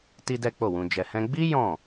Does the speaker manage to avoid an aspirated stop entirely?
yes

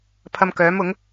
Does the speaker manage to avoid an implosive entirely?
yes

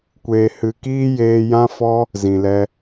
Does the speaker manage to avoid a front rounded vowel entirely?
yes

